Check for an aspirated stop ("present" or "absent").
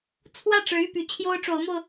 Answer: present